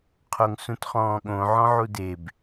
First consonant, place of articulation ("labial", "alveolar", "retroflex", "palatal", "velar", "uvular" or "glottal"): uvular